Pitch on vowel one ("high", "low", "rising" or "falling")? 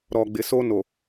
low